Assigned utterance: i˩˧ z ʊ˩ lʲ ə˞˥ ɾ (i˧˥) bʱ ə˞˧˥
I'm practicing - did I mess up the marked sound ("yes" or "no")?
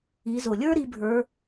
no